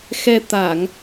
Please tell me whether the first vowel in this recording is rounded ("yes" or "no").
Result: no